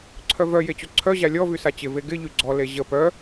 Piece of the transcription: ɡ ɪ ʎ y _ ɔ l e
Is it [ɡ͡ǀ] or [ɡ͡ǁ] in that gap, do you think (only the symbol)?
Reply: ɡ͡ǀ